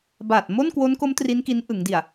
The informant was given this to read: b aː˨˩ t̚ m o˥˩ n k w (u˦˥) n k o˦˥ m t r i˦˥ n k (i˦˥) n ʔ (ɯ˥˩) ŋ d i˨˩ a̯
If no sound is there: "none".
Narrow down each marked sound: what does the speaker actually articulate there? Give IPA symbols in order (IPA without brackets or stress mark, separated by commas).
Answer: o˦˥, i˦˥, ɯ˩˦